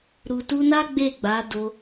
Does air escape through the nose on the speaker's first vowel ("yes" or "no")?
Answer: no